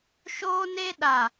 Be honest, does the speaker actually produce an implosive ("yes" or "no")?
yes